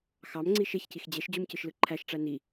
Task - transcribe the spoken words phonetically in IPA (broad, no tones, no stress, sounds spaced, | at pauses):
x ɑ m ŋ͡ǀ i ʃ e ç c i x d͡ʑ e ʃ d͡ʑ u m c ɯ ʃ l ɯ ǃʰ æ ʃ ʈ͡ʂ æ n i